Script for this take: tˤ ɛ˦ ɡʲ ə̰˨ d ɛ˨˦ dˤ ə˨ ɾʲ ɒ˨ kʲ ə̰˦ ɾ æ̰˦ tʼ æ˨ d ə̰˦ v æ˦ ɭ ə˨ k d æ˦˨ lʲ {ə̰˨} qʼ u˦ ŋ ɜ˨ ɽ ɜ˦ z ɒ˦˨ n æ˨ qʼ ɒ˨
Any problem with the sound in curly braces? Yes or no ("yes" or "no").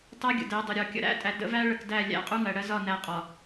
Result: yes